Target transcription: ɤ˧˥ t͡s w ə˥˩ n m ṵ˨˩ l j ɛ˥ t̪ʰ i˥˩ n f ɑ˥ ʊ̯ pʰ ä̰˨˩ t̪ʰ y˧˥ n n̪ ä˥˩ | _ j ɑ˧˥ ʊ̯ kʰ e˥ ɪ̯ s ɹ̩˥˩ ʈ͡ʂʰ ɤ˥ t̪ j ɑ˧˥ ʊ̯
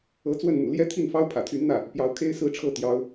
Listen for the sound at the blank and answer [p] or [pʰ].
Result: p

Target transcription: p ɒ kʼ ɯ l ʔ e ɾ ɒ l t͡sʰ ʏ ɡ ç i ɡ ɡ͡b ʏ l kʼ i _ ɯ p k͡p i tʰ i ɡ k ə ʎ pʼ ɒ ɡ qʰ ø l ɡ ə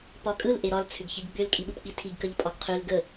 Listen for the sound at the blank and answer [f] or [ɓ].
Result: ɓ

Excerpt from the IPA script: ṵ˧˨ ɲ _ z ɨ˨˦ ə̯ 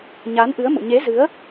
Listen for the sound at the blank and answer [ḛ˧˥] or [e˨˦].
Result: e˨˦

